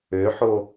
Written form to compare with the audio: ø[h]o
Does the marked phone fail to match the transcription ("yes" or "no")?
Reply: yes